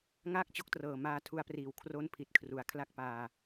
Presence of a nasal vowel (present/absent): absent